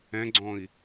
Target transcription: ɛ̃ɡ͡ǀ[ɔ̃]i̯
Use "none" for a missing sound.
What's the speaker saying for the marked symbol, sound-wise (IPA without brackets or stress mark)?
ɔ̃